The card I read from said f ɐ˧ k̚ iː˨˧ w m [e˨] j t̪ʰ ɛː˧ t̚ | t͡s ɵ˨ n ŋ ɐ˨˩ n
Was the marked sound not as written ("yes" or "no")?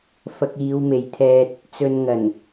no